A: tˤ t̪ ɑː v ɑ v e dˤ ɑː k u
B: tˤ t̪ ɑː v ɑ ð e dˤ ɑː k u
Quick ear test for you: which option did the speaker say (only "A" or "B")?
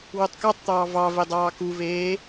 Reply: A